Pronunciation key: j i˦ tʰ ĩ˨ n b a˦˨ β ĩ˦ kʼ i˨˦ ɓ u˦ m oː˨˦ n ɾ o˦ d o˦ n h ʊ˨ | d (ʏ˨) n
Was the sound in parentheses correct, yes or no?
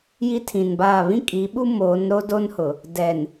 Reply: no